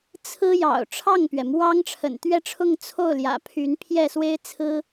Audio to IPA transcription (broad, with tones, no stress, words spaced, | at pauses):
t͡sʰɹ̩˥jɑ̰˨˩ʊ̯ ʈ͡ʂʰɑ˥˩ŋpɥɛ˩ mwɑ˥ŋʈ͡ʂʰə̰˨˩n t̪ɥɛ˥˧ʈ͡ʂʰʊ˥˧ŋ t͡sʰo˥˩ʊ̯ ljä̰˨˩ pʰy˧˥npʰjɛ˥˩swe˥ɪ̯ t͡sʰɹ̩˥